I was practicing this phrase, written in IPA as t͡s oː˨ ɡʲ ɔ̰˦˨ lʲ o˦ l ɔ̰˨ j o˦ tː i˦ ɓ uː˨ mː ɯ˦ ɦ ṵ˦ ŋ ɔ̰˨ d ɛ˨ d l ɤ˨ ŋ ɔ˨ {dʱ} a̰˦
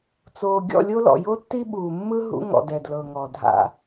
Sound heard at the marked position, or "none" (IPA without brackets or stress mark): dʱ